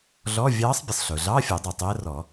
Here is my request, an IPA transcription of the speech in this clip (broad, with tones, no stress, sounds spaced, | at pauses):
ɮ ɔː˧˥˧ vʲ ɑː˧˥ sˤ bʲ ə˩ sˤ ɬ ʊː˩ ɮ ɑː˧˥˧ fʲ ɔ˨˩˦ dˤ ɛ˩ tˤ əː˧˥ r ɔ˨˩˦